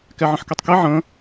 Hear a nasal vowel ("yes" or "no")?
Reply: yes